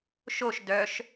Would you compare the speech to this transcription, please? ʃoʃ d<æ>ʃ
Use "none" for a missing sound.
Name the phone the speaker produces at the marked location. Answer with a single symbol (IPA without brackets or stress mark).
œ